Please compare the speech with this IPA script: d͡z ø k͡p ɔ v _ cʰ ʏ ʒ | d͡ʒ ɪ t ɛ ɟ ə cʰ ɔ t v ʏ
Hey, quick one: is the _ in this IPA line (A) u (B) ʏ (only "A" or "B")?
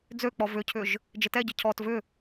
B